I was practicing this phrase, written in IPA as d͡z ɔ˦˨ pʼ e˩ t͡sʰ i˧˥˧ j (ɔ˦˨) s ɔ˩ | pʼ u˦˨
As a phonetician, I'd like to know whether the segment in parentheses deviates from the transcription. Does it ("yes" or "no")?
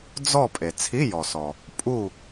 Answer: yes